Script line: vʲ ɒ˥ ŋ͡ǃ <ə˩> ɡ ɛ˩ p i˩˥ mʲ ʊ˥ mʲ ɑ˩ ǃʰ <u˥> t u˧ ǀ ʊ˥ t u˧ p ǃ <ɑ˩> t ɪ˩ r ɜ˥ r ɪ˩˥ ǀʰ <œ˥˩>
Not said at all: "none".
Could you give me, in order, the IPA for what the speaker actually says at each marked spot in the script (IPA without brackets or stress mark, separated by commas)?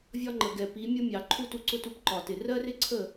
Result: ə˩, u˥, ɒ˩, ə˥˩